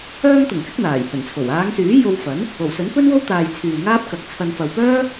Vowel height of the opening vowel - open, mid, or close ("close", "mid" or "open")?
mid